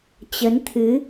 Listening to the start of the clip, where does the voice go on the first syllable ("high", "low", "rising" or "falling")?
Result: rising